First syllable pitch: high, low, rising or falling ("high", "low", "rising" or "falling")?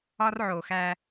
high